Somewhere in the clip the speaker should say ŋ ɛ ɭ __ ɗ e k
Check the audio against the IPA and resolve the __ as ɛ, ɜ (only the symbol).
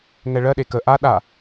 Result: ɜ